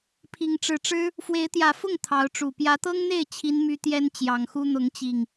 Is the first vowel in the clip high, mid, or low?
high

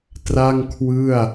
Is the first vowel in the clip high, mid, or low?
low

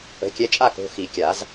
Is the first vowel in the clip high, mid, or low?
mid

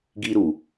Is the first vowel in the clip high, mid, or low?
high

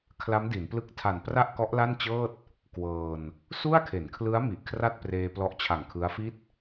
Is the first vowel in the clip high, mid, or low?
low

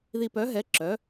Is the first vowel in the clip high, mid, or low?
high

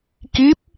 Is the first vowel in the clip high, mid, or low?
high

